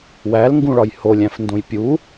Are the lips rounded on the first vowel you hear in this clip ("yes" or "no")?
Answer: no